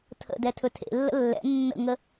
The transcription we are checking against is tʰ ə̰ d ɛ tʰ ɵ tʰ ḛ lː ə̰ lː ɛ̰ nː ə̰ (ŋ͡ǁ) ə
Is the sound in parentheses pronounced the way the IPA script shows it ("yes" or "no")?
no